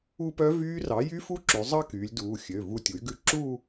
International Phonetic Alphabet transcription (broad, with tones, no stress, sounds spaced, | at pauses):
u˥˧ p œ˦˥ v yː˦˥ r ɑ˩˥ j y˦˥ f u˥˧ ǁ ʉ˩˧ zˤ ɑ˥˧ k yː˩˧ lʲ d uː˩˧˩ xʲ ø˩˧˩ v u˥˩ tʲ u˩˥ y̯ ɡ ʉ˦˥ ǁ uː˥˧